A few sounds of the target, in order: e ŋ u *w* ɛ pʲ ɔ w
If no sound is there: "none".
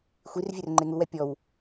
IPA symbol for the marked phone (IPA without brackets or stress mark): w